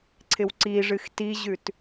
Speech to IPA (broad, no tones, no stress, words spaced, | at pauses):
ǀʰɪwǀiʐɨx tiʑʉt